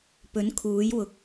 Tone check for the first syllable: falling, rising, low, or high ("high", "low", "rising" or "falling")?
rising